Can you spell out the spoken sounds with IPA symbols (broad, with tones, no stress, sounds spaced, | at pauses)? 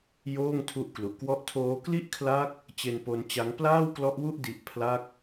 j oː˥˩ ŋ tʰ u˦˥ ʔ k l u˨˩ ʔ k w ɔ˦˥ ʔ tʰ oː˦˥ k l i˥˩ ʔ kʰ l a˦˥ k̚ | t͡ɕ e˧ n p o˧ n t͡ɕ a˦˥ ŋ p l aː˥˩ w k l ɔ˦˥ ʔ w u˥˩ ʔ d i˦˥ ʔ pʰ l a˥˩ k̚